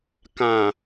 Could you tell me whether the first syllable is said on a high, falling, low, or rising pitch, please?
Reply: low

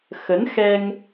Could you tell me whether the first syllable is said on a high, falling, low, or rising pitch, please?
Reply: rising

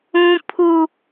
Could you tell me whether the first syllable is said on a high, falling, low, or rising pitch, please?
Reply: high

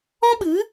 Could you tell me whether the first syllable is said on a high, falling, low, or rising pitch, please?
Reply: high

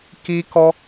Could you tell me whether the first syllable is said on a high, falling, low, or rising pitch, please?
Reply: high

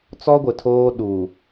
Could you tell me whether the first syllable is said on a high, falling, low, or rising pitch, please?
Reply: high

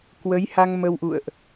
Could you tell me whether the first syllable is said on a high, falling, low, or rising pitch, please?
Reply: rising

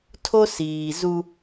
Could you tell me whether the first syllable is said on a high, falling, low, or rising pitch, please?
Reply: high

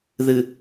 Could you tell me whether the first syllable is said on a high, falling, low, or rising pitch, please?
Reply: low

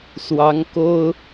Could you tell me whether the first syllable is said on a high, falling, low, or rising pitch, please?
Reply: rising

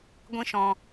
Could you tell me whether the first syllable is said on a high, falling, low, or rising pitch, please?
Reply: high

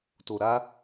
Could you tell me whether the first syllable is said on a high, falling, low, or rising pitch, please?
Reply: low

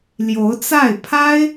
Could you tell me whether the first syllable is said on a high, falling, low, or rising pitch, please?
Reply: rising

